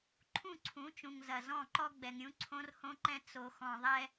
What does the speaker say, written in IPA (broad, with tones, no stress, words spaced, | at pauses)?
ǃʰũ˦˨ǀʰũ˨˦t͡ʃũ˨ŋ zɐ˨zɔ̃˦˨ǃɔ˦ ɡ͡bɛ˨ŋɾʲũ˦ ǀʰõ˦rhõ˦ǃɛ̃˦ t͡so˨xɔ̃˨ðˤɛ˦